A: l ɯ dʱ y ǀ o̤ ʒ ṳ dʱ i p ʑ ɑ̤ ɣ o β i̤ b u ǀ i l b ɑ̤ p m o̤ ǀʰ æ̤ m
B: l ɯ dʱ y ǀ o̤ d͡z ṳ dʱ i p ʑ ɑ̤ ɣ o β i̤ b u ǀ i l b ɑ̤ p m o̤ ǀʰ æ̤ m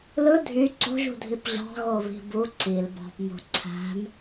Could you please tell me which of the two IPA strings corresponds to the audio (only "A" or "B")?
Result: A